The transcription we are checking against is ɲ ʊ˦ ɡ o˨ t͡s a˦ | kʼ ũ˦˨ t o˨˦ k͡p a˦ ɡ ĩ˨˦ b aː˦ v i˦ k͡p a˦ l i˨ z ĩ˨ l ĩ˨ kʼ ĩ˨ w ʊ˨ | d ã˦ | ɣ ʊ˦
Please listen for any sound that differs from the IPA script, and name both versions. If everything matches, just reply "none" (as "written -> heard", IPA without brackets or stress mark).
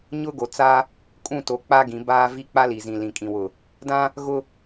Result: none